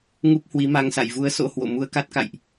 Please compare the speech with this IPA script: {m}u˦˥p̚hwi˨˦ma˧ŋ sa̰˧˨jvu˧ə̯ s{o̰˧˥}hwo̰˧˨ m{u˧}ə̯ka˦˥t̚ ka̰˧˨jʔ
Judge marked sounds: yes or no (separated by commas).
no, yes, yes